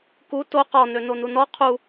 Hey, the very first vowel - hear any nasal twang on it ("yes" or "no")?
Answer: no